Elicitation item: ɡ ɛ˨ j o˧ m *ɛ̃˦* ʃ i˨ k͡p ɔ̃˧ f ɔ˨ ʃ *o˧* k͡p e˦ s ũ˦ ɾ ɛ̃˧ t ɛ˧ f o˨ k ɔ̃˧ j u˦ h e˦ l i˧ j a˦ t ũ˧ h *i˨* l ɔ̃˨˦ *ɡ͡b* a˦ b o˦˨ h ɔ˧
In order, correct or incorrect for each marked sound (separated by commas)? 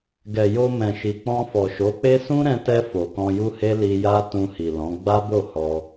incorrect, incorrect, correct, correct